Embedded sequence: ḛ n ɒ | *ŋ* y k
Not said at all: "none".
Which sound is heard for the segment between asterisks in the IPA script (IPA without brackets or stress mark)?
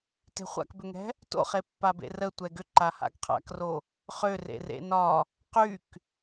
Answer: q